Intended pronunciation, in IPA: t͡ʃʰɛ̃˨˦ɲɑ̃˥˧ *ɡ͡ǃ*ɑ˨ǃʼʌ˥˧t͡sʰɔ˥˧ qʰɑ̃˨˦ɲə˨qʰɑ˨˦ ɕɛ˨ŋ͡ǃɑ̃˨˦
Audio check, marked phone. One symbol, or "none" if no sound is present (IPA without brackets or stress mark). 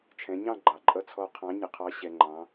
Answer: ɡ͡ǃ